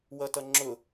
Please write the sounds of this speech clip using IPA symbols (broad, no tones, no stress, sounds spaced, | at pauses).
w ʌ t ʌ ŋ͡ǁ ʊ